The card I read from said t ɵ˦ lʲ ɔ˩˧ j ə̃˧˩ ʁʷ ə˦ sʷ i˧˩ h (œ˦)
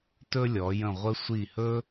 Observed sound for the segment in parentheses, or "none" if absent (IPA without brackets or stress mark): ɵ˦